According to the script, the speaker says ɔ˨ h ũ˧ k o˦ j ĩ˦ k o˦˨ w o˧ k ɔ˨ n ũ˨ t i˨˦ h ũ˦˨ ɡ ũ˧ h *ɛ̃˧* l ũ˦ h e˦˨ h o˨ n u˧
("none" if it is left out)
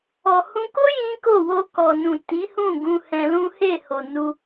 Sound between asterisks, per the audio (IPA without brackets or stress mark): ɛ̃˧